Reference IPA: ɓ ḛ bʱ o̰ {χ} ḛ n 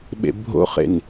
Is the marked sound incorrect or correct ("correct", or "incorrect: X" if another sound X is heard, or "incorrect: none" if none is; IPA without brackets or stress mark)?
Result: correct